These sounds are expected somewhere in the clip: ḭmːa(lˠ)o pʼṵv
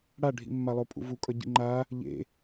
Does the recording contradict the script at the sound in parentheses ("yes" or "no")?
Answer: no